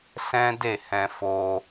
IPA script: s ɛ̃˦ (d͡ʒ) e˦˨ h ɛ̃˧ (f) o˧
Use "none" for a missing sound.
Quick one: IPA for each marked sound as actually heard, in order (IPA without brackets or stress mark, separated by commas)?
d, f